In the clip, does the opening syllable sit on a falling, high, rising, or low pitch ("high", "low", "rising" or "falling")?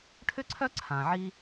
high